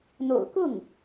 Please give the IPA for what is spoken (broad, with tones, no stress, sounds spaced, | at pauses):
n̪ o̰˨˩ ʊ̯ k ʊ˥˩ ŋ